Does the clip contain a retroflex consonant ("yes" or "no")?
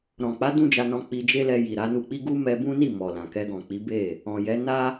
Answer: no